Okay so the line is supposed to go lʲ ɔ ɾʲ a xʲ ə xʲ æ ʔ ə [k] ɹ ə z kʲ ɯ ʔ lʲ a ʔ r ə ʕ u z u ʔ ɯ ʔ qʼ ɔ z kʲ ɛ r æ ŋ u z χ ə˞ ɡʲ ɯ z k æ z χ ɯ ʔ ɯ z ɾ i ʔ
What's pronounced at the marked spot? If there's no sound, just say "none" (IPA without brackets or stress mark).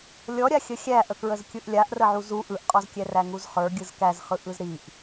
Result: k